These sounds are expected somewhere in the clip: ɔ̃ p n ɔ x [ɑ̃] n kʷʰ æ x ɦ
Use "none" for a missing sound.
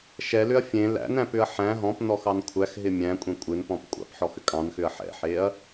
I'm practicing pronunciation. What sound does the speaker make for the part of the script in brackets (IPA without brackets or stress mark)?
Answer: ɑ